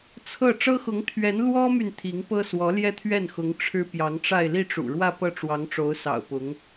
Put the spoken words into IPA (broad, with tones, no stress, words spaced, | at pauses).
t͡sʰɤ˥˩ ʈ͡ʂɤ˥xʊ˧˥ŋ t̪ʰɥɛ˧˥n lwɔ˥my˨n t̪ʰi˧˥ŋpɤ˥swɔ˧˥ ljɛ˥˧t̪ʰɥɛ˥˩nxʊ˧˥ŋ ʈ͡ʂʰɻ̩˥pjɑ˧˥ŋʈ͡ʂa˥˧ɪ̯ li˥˩ʈ͡ʂṵ˨˩ɻwä˥˧ pɤ˥˩ʈ͡ʂwɑ˧˥ŋʈ͡ʂo˧˥ʊ̯ sɑ̰˨˩ʊ̯pʊ˧˥ŋ